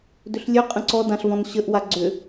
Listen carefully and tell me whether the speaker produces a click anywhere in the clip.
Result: yes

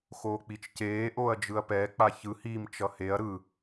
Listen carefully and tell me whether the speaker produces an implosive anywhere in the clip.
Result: no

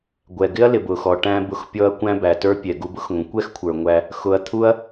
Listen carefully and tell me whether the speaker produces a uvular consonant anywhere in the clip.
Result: no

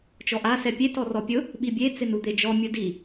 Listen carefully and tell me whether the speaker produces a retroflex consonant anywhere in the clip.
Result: no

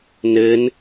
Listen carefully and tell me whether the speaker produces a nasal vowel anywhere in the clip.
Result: no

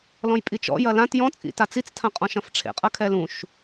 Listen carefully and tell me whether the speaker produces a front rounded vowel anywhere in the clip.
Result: no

